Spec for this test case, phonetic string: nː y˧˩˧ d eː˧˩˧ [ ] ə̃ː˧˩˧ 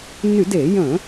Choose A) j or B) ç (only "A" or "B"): A